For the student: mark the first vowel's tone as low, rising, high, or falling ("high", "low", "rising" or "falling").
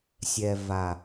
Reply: low